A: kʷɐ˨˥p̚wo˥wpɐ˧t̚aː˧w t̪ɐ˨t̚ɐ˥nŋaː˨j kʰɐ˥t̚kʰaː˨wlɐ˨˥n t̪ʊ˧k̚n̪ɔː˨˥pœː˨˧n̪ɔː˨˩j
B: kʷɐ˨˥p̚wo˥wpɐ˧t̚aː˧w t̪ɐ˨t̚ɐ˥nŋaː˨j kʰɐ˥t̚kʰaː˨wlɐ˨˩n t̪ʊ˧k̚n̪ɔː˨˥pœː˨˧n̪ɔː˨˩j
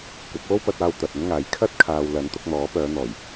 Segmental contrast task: A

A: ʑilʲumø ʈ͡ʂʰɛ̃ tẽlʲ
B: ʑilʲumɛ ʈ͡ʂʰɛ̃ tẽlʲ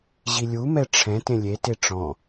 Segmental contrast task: B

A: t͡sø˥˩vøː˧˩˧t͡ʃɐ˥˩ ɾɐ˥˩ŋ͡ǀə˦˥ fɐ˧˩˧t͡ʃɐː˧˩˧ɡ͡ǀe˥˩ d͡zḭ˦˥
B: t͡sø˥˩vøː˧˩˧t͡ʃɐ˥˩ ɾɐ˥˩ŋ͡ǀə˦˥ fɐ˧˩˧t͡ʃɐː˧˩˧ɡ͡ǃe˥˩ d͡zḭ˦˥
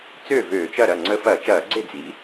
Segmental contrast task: A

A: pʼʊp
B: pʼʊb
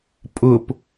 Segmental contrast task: A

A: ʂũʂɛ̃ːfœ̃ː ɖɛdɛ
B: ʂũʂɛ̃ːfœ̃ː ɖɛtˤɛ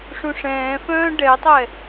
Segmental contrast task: B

